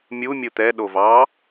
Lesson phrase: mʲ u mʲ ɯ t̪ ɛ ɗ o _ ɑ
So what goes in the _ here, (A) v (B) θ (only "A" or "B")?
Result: A